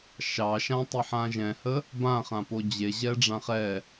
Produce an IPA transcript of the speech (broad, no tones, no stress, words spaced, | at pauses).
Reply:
ʃɑʃã tˤiħãʒɛ̃hə | bãχãpo d͡ʑeʑɛ ɖ͡ʐãχɛ